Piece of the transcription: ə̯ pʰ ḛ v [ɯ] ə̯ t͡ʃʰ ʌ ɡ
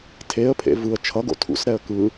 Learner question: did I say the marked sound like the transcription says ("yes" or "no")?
yes